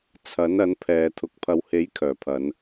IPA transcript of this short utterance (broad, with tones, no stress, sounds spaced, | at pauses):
t͡sʰ ɐ˨˥ n ɐ˨˥ n pʰ ɛː˨˧ t̪ʰ ʊ˨ k̚ pʰ ɐ˨˧ w h e˨˥ j kʰ œː˨˩ pʰ ɐ˨˧ n